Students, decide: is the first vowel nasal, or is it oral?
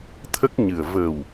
oral